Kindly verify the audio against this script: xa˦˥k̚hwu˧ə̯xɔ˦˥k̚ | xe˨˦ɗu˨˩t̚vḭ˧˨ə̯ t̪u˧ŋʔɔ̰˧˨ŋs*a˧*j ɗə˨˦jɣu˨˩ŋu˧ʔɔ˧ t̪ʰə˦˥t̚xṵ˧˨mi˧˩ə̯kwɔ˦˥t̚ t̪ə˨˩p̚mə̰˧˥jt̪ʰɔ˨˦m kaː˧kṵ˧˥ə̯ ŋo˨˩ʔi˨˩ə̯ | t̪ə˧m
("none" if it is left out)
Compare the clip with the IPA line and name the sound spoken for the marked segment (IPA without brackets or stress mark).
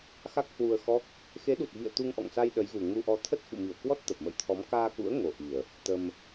a˧